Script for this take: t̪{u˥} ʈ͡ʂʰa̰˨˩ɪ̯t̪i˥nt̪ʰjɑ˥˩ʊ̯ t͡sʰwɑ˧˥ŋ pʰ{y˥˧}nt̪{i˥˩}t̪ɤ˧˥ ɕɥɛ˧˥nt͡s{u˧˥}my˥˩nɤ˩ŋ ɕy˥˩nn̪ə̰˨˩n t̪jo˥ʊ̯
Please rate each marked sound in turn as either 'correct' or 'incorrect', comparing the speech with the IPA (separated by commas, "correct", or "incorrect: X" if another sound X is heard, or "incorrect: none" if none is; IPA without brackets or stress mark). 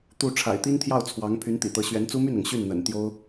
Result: incorrect: u˥˩, incorrect: y˧˥, incorrect: ḭ˨˩, incorrect: u˥